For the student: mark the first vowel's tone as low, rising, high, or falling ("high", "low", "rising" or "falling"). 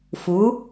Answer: rising